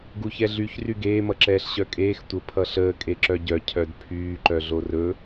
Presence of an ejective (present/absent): present